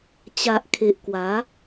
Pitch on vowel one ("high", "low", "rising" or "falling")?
low